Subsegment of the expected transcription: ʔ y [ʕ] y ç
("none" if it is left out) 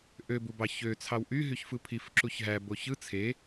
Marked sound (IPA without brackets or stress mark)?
ɦ